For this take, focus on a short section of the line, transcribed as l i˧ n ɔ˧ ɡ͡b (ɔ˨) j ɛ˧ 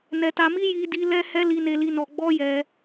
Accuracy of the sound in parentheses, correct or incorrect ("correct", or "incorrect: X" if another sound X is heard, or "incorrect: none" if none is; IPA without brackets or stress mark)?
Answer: incorrect: ɔ˦